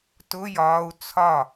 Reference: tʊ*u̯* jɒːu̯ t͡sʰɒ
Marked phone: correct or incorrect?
incorrect